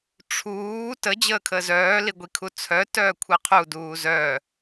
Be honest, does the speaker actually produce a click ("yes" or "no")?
no